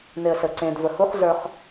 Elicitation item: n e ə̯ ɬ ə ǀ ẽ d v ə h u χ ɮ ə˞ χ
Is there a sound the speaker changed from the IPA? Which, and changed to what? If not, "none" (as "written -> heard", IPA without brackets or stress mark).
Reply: none